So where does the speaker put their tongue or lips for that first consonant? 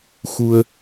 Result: velum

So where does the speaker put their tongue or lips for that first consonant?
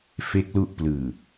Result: lips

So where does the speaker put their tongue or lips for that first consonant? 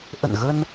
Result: throat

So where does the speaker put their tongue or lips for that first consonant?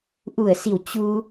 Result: throat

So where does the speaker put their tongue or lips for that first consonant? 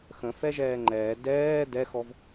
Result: velum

